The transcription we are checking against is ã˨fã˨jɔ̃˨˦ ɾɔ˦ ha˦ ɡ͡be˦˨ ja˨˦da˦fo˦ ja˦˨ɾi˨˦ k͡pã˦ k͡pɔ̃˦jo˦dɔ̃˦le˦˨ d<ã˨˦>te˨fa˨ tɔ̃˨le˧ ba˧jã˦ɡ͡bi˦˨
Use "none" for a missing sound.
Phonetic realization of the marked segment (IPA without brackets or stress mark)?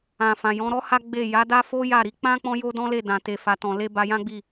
ã˨